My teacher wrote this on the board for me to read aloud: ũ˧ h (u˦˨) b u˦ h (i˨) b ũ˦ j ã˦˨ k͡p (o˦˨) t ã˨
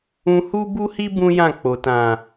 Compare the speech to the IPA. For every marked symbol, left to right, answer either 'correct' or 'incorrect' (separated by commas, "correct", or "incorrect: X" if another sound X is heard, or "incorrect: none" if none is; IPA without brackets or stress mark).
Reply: incorrect: u˦, incorrect: i˦, incorrect: o˨